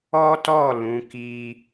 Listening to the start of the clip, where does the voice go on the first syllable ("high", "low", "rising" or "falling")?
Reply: high